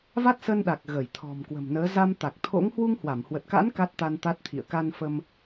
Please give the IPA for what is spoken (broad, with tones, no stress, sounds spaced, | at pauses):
v a˦˥ t̚ s ə˧ n ɗ a˨˩ k̚ ɣ ə˧˩ j t̪ʰ ɔ̤˨˩ m k w ə̤˨˩ m n əː˨˦ z a˧ m t̪ a˨˩ k̚ t̪ʰ o̰˧˥ ŋ h w u˧ ŋ h w a˧˩ m h w ə˨˩ t̚ k a̰˧˥ n k a˦˥ t̚ t̪ a˧ n t̪ a˦˥ t̚ t̪ʰ ḭ˧˨ ə̯ k a˧ n f ə˧ m